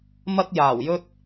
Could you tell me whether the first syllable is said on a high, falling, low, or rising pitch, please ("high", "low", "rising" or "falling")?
high